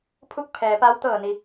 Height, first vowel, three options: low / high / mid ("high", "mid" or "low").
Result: high